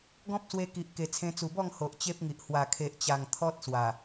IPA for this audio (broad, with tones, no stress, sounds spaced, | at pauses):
ɡ ɔ̃˦ p̚ s w e˧ k i˨ ʔ k e˨˩ t͡sʰ ẽ˧ t͡s u˨˩ b ɔ˥˧ ŋ h o˨ ʔ t͡ɕ e˦ p̚ ŋ i˨ ʔ h w a˨˩ kʰ e˨ ʔ t͡ɕ a˨˩ ŋ t̪ʰ ɔ˦ t̚ s w a˨˩